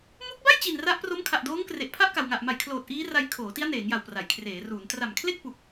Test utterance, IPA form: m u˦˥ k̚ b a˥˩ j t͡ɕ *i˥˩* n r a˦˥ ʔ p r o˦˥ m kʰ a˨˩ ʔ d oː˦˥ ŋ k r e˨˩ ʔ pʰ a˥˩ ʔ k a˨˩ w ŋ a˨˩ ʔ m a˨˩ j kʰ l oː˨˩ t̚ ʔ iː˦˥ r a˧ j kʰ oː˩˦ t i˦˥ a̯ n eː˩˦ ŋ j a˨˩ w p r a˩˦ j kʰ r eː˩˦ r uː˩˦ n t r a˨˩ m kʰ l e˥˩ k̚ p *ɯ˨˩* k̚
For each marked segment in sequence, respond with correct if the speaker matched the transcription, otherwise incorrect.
incorrect: i˨˩, incorrect: u˨˩

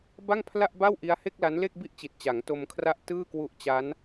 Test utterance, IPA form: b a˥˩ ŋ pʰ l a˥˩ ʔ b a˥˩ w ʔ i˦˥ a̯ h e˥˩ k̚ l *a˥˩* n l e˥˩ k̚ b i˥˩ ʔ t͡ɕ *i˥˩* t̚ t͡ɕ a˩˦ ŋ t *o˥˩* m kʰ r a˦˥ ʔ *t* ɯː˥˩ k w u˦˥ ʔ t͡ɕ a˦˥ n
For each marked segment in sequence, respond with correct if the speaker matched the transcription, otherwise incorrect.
incorrect: a˦˥, incorrect: i˨˩, incorrect: o˧, correct

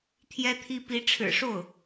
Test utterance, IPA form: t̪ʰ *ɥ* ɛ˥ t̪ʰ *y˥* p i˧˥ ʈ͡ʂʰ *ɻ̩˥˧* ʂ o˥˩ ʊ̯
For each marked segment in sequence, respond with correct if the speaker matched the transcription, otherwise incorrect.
incorrect: j, incorrect: i˥, incorrect: ɻ̩˨˩

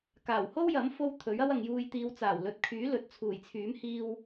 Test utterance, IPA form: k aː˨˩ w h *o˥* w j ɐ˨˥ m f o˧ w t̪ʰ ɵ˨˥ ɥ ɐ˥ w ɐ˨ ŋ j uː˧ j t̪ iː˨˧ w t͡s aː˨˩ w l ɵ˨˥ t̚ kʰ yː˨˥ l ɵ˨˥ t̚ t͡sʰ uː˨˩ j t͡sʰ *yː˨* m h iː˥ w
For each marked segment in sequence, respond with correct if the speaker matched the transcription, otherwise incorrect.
correct, incorrect: yː˨˥

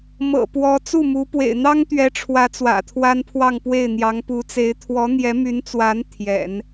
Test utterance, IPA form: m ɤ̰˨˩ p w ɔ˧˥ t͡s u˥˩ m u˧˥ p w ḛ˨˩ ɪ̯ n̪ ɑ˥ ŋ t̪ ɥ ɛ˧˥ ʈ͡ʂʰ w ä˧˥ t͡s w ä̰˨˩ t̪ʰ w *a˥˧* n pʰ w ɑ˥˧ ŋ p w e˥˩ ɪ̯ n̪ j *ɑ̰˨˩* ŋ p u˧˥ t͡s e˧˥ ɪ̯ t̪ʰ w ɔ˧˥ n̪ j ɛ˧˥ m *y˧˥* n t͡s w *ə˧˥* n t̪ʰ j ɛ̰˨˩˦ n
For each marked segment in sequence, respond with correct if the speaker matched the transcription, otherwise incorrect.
incorrect: a˥, incorrect: ɑ˧˥, correct, incorrect: a˧˥

